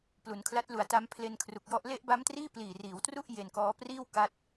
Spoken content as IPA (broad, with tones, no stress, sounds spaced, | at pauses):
p l u˩˦ n kʰ l a˦˥ t̚ l u˩˦ a̯ t a˦˥ m pʰ l e˧ n kʰ r u˨˩ k̚ j ɔ˦˥ ʔ l e˦˥ ʔ b a˦˥ m t r iː˥˩ p l iː˨˩ r iː˩˦ w t r u˥˩ ʔ j e˧ n k ɔː˦˥ p r iː˥˩ w k a˦˥ t̚